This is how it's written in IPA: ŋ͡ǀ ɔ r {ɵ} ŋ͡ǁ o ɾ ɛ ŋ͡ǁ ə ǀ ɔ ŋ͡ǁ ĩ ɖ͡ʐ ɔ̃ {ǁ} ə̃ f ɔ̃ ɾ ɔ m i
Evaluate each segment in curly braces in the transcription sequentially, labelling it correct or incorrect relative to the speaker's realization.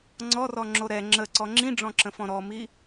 incorrect: ɔ, correct

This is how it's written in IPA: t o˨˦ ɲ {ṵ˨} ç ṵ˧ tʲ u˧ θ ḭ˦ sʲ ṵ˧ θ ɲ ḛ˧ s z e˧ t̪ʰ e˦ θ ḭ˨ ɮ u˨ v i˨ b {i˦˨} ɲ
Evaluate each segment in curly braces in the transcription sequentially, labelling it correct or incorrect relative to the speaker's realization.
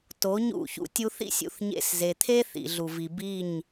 incorrect: ṵ˦˨, correct

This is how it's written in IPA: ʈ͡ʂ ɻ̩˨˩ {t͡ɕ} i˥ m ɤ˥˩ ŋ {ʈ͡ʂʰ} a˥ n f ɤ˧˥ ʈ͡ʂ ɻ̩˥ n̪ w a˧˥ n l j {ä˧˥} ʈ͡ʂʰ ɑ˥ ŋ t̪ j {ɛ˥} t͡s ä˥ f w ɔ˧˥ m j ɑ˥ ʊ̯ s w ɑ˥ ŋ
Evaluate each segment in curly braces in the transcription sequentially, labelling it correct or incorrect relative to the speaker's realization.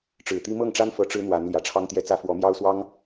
incorrect: t̪, incorrect: ʈ͡ʂ, incorrect: ä˨˩, correct

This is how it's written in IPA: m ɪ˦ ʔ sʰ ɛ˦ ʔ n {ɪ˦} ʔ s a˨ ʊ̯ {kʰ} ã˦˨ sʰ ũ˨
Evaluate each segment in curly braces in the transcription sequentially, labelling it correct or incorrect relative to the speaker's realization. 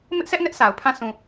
incorrect: ɛ˦, incorrect: pʰ

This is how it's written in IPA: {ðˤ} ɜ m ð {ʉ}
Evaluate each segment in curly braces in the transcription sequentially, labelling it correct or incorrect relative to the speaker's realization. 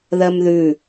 incorrect: ð, correct

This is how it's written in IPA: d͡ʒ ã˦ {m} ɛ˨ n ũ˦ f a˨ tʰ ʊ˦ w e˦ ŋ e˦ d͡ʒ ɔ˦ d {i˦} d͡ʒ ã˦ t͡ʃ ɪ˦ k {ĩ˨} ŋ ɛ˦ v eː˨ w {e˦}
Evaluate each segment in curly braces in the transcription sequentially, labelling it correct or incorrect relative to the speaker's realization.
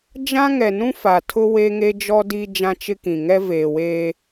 incorrect: ŋ, correct, correct, incorrect: eː˦

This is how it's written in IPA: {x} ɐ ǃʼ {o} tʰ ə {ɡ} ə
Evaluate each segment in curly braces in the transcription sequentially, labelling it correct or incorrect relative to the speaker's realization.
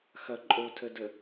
correct, correct, incorrect: d

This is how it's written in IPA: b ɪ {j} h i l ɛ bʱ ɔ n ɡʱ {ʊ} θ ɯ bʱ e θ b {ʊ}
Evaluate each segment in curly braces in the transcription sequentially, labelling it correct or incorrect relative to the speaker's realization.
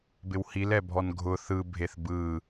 incorrect: w, correct, incorrect: ɯ

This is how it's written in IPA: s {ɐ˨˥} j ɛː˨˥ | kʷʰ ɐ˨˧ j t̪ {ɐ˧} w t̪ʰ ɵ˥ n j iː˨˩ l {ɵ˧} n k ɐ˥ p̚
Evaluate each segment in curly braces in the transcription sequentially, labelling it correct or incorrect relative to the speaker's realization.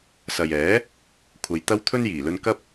incorrect: ɐ˨, incorrect: ɐ˥, correct

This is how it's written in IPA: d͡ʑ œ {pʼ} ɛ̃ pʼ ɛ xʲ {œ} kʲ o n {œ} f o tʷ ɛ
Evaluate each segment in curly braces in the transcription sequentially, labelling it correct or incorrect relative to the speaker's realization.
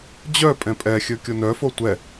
correct, incorrect: ɵ, correct

